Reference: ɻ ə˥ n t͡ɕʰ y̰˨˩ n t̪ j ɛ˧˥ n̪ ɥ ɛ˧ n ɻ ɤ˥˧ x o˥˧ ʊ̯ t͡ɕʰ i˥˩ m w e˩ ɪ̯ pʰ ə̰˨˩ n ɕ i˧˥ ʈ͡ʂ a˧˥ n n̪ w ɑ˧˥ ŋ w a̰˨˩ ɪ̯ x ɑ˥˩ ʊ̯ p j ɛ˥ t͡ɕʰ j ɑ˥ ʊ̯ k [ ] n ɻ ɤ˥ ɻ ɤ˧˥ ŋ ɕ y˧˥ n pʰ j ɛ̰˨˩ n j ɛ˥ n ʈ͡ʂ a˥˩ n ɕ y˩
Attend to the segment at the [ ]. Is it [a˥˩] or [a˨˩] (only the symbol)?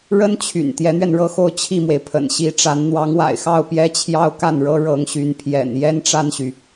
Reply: a˥˩